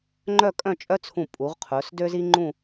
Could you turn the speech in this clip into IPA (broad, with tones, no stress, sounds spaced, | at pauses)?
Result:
ŋ͡ǃ œ˥˧ kʼ œ̃˥˧ t͡ʃʼ œ˥ t͡sʰ ũ˧˩ pʼ u˩˧ ʁ qʰ ɵ˩˧ s d ø˥ z i˥ ŋ͡ǃ ũ˥˧